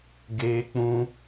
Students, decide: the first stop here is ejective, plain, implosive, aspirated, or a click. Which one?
plain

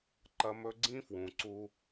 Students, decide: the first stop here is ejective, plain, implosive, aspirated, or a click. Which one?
click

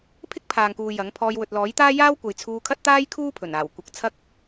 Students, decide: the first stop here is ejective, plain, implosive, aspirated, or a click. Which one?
aspirated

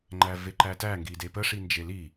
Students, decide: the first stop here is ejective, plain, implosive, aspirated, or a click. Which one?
click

